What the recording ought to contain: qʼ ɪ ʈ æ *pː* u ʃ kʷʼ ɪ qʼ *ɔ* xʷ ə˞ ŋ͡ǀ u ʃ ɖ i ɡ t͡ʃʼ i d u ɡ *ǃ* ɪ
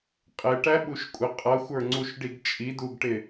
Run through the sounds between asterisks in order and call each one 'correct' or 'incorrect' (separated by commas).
incorrect, incorrect, incorrect